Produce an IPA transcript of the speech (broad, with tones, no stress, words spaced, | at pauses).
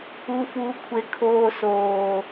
u˨fuː˨kʷʰe˨ kʰoː˨soː˨